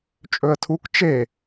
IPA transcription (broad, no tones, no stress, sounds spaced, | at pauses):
t͡ʃʼ ɵ ə̯ tʰ u k t͡ʃ e